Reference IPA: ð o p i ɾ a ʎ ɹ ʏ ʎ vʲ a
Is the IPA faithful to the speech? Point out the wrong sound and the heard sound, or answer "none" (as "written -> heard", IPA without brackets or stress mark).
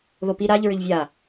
none